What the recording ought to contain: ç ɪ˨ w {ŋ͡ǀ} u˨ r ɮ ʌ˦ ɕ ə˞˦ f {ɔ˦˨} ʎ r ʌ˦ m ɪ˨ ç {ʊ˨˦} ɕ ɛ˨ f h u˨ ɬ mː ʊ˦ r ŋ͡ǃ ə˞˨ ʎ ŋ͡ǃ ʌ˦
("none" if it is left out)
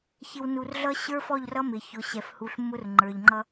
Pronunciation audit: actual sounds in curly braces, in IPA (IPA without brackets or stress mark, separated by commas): n, ɔ˦˨, ʊ˨˦